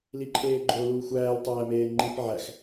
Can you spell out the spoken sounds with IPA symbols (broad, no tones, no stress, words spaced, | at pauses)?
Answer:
liǃʰeːɡ͡ǃo luːxʷæːl tˤæːmeːŋ͡ǃip ʕæx